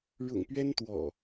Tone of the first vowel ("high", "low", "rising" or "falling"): low